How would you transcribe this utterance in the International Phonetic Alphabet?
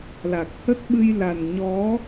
l a˨˩ k̚ h ə˦˥ t̚ ɓ ɨ˧ j l a˨˩ n ɲ ɔ˨˦

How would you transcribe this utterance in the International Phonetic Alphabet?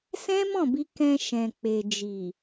s ɛ̃˦ m ɔ̃˦˨ b i˧ k ɛ̃˧ ʃ ɛ̃˨ k͡p e˨ d͡ʒ i˨

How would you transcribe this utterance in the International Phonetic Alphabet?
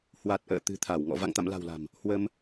h w a˨˩ t̚ ʔ ə̰ː˧˨ t̪ ɨ̤˨˩ t̪ʰ a˧˩ w ŋ ɔ̰˧˨ v a̰˧˨ ŋ t̪ a̰˧˨ m l a̤˨˩ w l a̤˨˩ m | h w ə˧ m

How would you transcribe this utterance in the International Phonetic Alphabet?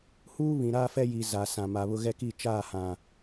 h uː˦ β ĩ˨ ɾ aː˦ f ɛ˦ j i˨ z a˨ s ã˨ m a˨ β ʊ˦ ɣ ɛ˦ k i˦˨ t͡ʃ aː˦˨ h ã˨

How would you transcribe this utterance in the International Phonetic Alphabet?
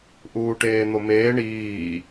ʔ uː ʈ eː n̪ o m eː ɳ iː

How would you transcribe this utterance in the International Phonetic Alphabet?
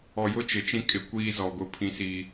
ɔ˨ j ʊ˦ t͡ʃ ɪ˨ t͡ʃ ĩ˦ kʼ ɪ˨˦ kʷ iː˦ z ɔ˨ ɡ ʊ˨ pʰ ĩ˦ s i˦

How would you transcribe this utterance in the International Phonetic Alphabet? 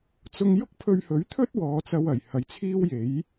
t͡s ʊ˧ ŋ j ʊ˥ k̚ pʰ ɵ˧ ɥ h ɵ˨˥ ɥ t̪ʰ ɵ˥ t̚ w ɔː˨˧ t͡s ɐ˧ w ɐ˨˩ j h ɐ˨˥ j t͡sʰ iː˥ w j e˨˥ j

